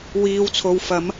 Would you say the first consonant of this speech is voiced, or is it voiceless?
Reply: voiced